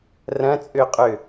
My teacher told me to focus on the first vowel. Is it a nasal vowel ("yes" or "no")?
yes